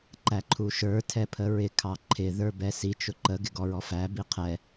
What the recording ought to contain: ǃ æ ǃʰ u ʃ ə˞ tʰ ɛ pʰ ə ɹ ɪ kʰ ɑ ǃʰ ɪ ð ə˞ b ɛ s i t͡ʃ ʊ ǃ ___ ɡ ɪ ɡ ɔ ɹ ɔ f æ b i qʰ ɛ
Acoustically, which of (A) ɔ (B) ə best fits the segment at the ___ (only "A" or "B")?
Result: B